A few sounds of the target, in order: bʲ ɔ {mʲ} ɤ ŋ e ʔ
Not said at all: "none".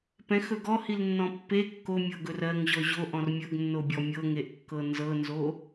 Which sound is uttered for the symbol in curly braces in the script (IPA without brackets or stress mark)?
mʲ